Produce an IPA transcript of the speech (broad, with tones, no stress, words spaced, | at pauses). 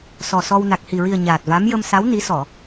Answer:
sɔ˨˩sɔ˧w na˨˩k̚hi˨˩ɹi˨˩ə̯ ɲaː˨˩t̚va˧˥m jə˧msa˧˥w ni˧˥sɔ˨˩˨